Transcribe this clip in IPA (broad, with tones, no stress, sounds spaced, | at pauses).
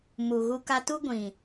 m u˨ ɣ u˧ k a˧ t u˦ ɡʷ ĩ˨